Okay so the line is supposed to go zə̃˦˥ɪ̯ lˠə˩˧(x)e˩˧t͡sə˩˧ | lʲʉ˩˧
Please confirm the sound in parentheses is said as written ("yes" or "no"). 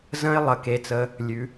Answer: no